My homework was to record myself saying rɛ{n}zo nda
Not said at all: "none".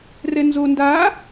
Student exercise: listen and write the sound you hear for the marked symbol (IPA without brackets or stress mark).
n